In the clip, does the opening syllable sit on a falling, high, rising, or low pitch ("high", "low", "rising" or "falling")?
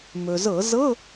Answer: low